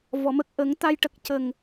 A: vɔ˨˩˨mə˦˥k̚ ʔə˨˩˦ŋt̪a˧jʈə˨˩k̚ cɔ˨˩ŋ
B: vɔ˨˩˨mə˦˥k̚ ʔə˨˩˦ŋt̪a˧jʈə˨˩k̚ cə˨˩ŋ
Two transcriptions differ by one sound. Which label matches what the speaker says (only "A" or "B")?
B